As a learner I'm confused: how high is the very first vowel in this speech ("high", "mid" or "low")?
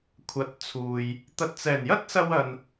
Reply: low